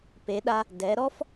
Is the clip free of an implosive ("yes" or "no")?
no